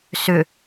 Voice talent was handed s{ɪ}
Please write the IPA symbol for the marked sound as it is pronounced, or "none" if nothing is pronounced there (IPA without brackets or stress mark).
ʏ